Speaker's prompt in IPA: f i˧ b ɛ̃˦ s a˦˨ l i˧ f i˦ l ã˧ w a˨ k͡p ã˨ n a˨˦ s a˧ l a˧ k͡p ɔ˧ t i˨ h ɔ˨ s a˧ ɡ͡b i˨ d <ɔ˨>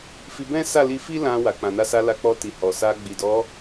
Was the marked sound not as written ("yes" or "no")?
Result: yes